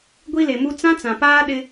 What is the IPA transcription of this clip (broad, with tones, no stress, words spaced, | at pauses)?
ɡʷi˦le˨mu˦ t͡sã˦t͡sã˨paː˦ɗɪ˦